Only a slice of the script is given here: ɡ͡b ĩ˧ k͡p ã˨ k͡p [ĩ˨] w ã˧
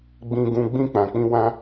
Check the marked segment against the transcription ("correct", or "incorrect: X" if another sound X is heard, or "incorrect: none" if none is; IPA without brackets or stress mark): incorrect: ĩ˧